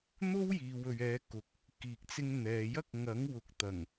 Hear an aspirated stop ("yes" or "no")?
no